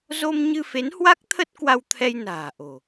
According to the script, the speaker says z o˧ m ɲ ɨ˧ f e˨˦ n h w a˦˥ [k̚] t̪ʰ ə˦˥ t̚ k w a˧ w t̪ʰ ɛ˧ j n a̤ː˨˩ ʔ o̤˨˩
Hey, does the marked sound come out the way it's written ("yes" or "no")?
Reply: yes